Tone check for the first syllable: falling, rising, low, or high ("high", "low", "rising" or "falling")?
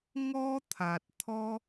high